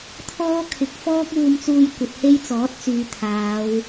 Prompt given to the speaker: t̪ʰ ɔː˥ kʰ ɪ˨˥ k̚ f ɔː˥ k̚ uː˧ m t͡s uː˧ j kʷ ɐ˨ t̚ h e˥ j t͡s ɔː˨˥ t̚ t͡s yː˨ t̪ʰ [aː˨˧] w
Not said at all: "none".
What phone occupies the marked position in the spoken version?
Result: aː˨˧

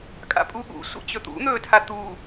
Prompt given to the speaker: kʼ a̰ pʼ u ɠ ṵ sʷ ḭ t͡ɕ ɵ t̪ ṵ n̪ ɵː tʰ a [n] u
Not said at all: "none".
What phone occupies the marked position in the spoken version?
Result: t̪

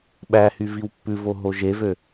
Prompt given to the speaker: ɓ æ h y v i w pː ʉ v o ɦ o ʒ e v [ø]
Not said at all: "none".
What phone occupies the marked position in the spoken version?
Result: ø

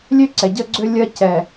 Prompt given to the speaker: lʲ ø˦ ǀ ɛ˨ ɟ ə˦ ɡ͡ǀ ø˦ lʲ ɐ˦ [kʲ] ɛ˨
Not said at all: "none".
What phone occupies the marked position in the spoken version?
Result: c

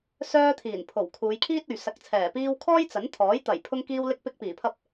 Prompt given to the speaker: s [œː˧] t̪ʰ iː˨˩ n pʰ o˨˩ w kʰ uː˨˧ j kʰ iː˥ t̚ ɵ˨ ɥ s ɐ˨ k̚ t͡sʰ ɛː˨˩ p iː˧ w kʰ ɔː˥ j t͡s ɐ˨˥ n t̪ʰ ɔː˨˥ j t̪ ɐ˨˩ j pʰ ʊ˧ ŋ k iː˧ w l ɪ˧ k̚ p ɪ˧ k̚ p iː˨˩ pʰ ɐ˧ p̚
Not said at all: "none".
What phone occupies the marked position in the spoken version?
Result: œː˧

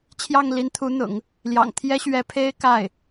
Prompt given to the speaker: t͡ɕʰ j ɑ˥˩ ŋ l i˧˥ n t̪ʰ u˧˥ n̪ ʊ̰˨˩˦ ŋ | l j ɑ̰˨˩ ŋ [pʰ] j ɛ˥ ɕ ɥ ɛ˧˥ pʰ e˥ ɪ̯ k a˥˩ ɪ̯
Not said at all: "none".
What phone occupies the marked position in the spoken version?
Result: t̪ʰ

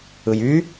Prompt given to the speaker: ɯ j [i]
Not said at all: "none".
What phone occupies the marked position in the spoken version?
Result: y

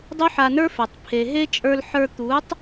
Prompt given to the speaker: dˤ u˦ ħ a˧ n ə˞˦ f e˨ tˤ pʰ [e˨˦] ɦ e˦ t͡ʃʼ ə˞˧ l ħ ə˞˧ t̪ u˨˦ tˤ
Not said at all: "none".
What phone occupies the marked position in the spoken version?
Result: e˨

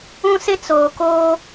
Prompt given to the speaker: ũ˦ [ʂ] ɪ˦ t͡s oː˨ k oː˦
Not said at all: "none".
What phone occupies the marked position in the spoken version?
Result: s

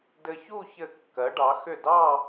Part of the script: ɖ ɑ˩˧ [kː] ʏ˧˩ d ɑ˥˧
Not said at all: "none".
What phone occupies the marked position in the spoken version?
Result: x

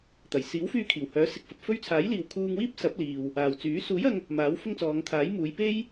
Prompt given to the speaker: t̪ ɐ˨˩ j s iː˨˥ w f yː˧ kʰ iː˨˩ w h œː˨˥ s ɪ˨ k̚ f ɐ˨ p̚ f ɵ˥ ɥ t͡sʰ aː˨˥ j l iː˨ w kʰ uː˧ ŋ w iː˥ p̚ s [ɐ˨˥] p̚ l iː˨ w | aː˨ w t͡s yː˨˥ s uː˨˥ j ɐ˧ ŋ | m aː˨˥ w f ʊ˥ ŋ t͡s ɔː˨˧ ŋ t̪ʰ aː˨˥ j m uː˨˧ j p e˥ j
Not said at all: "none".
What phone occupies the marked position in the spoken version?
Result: ɐ˨˥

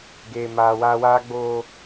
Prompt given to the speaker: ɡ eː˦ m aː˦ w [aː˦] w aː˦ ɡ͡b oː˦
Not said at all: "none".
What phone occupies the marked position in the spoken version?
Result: aː˦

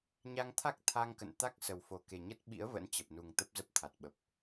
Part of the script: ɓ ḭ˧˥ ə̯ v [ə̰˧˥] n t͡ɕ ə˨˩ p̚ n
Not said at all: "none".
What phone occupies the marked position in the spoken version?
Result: ə̰˧˥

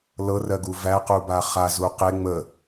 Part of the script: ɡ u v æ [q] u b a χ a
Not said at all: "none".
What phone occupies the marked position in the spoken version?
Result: q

